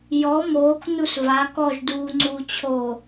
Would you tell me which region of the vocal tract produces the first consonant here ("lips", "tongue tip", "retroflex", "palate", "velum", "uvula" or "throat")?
palate